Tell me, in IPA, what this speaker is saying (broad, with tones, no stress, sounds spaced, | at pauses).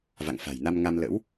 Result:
v a̰˧˨ ŋ f a̤˨˩ j n a˧ m ŋ a˧ m l ə̰˧˥ w